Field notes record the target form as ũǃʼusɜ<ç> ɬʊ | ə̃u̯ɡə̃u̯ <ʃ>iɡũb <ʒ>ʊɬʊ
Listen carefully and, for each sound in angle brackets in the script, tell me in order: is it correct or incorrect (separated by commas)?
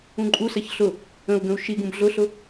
correct, correct, incorrect